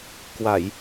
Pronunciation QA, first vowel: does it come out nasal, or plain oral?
oral